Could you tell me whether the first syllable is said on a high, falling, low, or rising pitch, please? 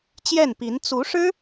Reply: falling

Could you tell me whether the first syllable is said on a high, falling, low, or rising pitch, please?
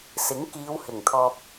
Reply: rising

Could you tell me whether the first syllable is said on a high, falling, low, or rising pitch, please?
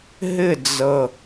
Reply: falling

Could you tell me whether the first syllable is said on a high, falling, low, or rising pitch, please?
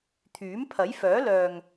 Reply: rising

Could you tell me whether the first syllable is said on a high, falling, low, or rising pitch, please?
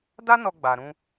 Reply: high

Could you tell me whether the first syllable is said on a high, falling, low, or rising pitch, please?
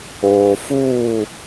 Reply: low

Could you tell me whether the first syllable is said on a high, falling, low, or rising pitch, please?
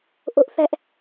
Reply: high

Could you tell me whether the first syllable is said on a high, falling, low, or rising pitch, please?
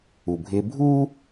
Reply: low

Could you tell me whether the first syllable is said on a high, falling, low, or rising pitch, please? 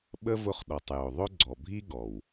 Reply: high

